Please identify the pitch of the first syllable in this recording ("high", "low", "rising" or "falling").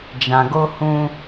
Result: low